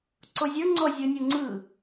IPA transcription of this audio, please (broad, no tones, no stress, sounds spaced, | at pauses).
ǀ o zʲ ə˞ ŋ͡ǀ ɔ zʲ ɤ nʲ o ŋ͡ǀ ɯ